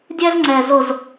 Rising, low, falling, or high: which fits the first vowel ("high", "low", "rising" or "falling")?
high